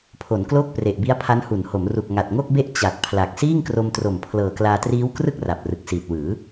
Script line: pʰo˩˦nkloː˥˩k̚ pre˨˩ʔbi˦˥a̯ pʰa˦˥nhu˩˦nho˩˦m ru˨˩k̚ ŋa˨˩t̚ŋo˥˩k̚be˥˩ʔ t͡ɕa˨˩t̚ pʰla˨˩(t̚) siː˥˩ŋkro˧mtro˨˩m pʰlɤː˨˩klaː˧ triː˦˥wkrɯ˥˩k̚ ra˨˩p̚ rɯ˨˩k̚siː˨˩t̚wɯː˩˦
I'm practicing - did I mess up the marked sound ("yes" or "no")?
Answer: yes